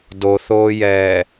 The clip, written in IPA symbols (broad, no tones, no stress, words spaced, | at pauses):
doθoːjɛː